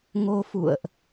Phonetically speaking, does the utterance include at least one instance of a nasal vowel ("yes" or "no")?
no